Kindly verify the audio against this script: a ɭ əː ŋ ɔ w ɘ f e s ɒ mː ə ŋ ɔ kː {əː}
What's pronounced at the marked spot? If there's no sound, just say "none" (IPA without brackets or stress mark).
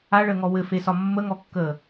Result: əː